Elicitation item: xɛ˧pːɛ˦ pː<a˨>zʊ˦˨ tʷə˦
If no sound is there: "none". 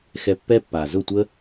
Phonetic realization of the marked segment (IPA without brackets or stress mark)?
a˨